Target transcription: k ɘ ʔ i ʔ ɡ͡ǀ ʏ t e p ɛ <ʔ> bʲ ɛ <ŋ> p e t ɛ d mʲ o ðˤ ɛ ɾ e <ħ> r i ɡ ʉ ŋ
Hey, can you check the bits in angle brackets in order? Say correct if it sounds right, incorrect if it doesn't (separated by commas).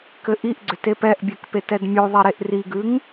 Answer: correct, incorrect, incorrect